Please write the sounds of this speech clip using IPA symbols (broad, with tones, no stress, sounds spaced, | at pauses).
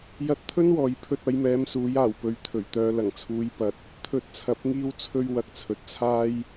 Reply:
j ɐ˧ t̚ t̪ʰ ɵ˥ n w ɔː˨ j pʰ ɵ˧ t̚ ɐ˨˧ j m ɛː˨˧ m s uː˨˥ j aː˨˩ w p ɵ˨ ɥ t̪ʰ ɵ˨˩ ɥ t̪ œː˧ l ɐ˨˩ ŋ t͡sʰ uː˨˧ j p ɐ˨ t̚ | t̪ʰ ɵ˧ t̚ t͡sʰ ɐ˨˥ p̚ ŋ iː˥ w t͡sʰ ɵ˥ ɥ w ɐ˧ k̚ t͡sʰ ɵ˨ t̚ t͡sʰ aː˥ j